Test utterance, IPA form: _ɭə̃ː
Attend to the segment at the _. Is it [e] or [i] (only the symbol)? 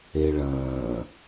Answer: e